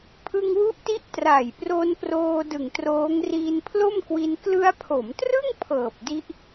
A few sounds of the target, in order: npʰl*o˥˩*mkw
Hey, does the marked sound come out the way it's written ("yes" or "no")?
yes